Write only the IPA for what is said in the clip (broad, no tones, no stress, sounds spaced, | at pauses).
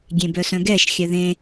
ɡʲ ẽ b œ s œ̃ ɡ ɛ ʃ xʲ œ ð ẽ